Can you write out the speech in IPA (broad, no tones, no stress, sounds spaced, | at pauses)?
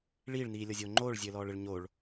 ɭ iː ɭ n iː lʲ ɔ zʲ oː ŋ͡ǃ oː ɭ zʲ ɘː l ɔː ɭ ɘ ɭ ɲ o ɭ